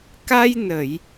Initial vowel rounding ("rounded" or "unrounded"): unrounded